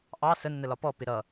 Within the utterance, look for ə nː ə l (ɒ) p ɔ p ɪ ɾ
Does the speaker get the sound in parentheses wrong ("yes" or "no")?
no